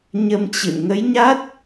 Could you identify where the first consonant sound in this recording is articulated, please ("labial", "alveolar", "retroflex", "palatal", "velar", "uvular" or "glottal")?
palatal